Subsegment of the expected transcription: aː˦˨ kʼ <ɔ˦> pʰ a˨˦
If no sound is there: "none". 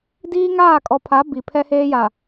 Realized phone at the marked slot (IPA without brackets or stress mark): ɔ˨